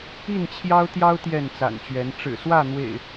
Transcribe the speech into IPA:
i˥˨nt͡ɕʰjɑ˦ʊ̯t̪jɑ˦ʊ̯ t̪jɛ˥˨nt͡sa̰˨˩nt͡ɕɥɛ˨˦n ʈ͡ʂɻ̩˨˩swä˥˨n̪wḛ˨˩ɪ̯

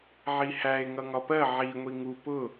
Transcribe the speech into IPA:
ʕihæe̯ ŋʌŋɒpɜ ʕi ŋʷiŋu pʊ

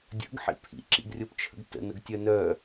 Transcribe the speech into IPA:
dʲə̰ɡħḭ pʰḭǁḭɡrʲopt͡ʃʰə̰ɡ tə̰nəɡtʲœ nœ

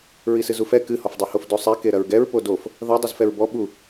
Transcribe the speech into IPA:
ɹisɨzufɛ kɨhɔfdˤohof dosˤɛke ɾɐɹɡɛɹ podof | ðɐ dˤɨzfɛɹbɔ ɓu

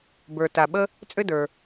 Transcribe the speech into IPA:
bə˞˩ta˩ɓə˥ | t͡sʼʏ˥də˞˩

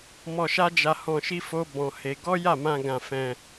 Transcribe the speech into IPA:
mɔ˧ʃa˦ d͡ʒa˧hɔ̃˧ʃi˦fo˦ bɔ̃˧he˧ ɡɔ˦ja˦˨mã˧ ɡã˧fɛ̃˧

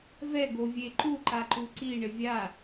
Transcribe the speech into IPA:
vɛ ɡovʲeǃu ǃaǃuǀi ɳɪvʲa

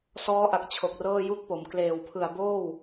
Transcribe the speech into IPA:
sɔː˦˥ʔa˨˩k̚ t͡ɕʰo˨˩k̚rɤː˥˩ju˥˩k̚po˩˦m kleː˨˩wpʰɯ˨˩a̯boː˥˩w

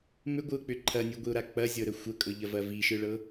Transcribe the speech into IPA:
mʏɡʷɯʊ̯k͡pʏ ǃʰɐnʲɯɡʷiʊ̯ɾa k͡pɐzʲɤɾə xʷəkʼɤʎɐvɐ viʃɯɭɤ

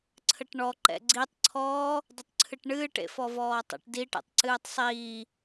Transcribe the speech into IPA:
ǀʰəʈɳɔ ǃɛ̰ɡ͡ǀitˤ ǀʰɔː | dˤətˤǀʰɨʈɳɨːʈ ḛfɔvɔːtˤə̰ʈ diʈḛtˤǀɨːtˤ sˤiː

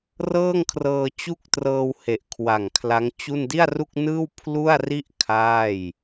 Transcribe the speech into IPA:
rɤː˥˩ŋkʰrɤː˧t͡ɕu˥˩k̚trɤː˧w he˨˩ʔkʰwa˨˩ŋkʰla˦˥ŋt͡ɕu˥˩n di˥˩a̯ru˥˩k̚nɯː˥˩w pʰlu˥˩a̯ri˥˩ʔ kʰaː˥˩j

